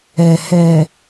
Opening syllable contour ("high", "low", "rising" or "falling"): low